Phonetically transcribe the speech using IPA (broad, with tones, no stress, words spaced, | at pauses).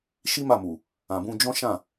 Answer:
ʃi˦ma˦˨mu˨ | ã˨bũ˧ d͡ʒɔ̃˦ʃã˦˨